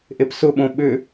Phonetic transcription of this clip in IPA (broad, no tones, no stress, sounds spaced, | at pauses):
ʔ e p s ʊ ɓ õ ɓ ʏ